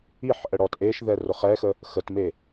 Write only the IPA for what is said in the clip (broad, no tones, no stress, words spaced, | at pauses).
iħʔə ɽɔtʔeʃðɛ rʊχɛxə | xətme